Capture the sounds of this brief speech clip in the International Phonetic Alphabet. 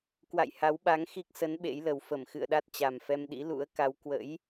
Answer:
kwa̰˧˨jha˨˦wɓa˨˦ŋ xi˦˥k̚ sə˨˦n ɓḛ˧˥jlə˨˩w fə˧˩mxɨ̰˧˨ə̯ɗa˦˥t̚t͡ɕa˨˩m fɛ˧mɗḭ˧˥lṵ˧˥ə̯ka˧w kwə̰˧˥j

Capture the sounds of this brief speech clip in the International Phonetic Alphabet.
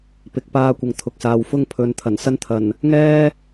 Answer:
pɪ˨k̚paː˧kʷɐ˨ŋ t̪ʰʊ˨k̚saː˨wfʊ˥ŋ pʰɵ˨˧n t̪ʰɐ˨˩nsɐ˧nt̪ʰɐ˨˩n | ŋɛː˥

